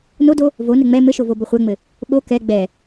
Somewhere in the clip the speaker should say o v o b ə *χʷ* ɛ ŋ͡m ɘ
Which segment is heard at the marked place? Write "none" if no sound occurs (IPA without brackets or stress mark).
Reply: χʷ